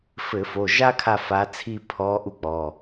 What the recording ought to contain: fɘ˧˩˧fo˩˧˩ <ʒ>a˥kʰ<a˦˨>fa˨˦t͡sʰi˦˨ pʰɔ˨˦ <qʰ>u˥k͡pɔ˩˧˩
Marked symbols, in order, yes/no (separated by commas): yes, yes, no